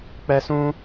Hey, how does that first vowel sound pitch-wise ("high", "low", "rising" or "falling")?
high